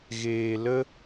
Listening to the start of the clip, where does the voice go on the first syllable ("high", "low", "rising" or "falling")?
low